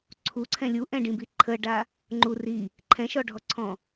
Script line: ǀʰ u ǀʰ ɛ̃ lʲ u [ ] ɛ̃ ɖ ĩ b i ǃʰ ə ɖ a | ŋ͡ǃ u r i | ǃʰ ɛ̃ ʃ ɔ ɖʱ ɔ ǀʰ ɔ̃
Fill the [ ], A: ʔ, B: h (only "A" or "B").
A